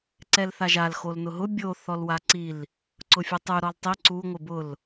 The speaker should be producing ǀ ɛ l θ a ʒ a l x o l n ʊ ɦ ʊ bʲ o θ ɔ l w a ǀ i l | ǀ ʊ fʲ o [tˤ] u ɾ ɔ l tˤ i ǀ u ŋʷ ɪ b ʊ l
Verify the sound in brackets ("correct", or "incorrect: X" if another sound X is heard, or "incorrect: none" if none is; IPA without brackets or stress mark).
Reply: correct